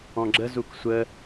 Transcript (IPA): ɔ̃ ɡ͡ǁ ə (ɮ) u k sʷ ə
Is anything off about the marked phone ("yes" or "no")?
yes